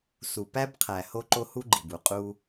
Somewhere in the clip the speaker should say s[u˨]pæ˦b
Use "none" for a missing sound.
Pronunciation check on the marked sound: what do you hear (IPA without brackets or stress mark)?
u˨